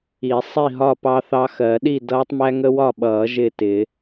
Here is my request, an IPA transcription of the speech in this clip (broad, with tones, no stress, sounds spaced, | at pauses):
i˨˩˦ sˤ i˥˨ ɦ ɒ˥˨ p ɑ˦ θ ɑ˦ x ɜ˨˩˦ ɗ i˥˨ d ʌː˦ tˤ m æ˦ ŋ ə˦ w ɒ˥˨ ɓ ʌː˨˩˦ ʒ ɪː˥˨ t ɪː˨˩˦